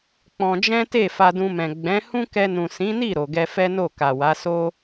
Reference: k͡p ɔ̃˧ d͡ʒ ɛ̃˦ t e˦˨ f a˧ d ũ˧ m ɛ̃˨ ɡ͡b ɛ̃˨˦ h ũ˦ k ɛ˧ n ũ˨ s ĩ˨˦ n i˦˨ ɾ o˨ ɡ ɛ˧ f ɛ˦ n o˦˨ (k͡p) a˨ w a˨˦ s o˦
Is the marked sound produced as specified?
no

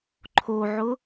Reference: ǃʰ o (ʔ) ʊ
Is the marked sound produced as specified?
no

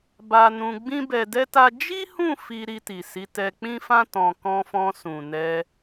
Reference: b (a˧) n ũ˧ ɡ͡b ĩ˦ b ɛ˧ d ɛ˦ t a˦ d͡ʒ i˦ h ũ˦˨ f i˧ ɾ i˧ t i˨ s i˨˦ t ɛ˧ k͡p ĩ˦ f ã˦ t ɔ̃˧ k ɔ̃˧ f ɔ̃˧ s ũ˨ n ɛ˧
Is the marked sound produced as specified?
yes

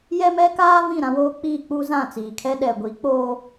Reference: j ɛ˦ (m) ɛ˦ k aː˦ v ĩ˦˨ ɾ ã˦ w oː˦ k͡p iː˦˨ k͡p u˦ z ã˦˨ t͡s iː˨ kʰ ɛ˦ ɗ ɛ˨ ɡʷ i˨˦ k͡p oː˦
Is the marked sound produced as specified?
yes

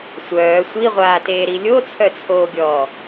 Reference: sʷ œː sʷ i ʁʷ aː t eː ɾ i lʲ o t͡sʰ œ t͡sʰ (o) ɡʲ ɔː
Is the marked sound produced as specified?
no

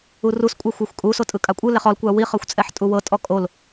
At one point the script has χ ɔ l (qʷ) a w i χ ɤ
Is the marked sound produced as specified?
no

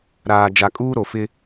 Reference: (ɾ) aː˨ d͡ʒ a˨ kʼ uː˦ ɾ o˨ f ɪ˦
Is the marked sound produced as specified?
yes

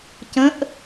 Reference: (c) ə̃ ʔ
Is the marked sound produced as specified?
yes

